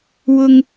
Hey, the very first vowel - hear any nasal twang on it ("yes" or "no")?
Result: no